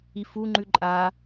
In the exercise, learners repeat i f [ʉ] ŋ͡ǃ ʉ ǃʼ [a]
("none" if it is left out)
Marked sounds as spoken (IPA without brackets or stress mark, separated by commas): u, a